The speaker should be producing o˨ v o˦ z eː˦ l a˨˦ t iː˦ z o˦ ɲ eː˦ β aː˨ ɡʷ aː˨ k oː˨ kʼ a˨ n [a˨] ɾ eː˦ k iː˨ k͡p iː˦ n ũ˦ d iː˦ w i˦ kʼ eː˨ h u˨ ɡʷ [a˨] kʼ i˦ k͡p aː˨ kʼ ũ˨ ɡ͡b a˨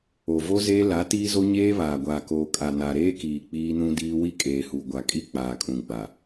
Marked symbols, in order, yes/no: yes, yes

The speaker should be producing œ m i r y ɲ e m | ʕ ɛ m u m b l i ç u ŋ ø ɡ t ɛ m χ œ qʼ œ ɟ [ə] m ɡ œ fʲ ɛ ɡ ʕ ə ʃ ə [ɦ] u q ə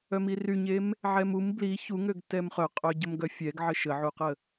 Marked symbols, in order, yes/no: yes, no

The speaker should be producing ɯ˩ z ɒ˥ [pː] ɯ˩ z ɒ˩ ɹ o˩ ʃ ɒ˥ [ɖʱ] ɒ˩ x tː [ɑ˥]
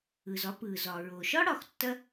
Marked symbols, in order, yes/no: no, no, no

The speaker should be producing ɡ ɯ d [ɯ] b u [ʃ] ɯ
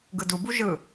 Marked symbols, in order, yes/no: no, no

